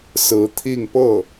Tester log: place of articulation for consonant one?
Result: alveolar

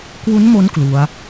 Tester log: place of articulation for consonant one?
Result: velar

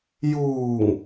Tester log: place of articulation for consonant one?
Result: palatal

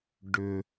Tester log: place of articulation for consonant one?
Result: retroflex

